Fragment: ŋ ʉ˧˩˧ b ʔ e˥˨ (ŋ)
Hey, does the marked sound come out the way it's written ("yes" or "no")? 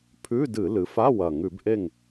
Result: yes